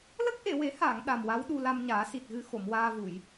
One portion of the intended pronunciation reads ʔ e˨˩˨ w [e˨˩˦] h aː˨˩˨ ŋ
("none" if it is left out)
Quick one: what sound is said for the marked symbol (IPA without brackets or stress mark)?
e˨˩˦